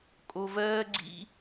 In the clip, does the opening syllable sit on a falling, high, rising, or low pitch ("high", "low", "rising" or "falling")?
high